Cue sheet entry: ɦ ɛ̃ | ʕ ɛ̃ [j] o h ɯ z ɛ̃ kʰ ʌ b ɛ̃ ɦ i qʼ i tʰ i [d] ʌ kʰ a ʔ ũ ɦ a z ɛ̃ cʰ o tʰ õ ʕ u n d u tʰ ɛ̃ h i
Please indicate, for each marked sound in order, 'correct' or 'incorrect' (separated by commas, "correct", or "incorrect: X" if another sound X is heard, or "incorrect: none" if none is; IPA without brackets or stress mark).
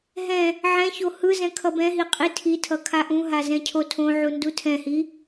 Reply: incorrect: ç, incorrect: tʰ